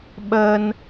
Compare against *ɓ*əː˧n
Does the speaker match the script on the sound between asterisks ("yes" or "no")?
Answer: yes